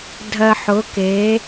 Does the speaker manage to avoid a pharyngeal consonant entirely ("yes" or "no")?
no